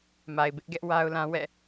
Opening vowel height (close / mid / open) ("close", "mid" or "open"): open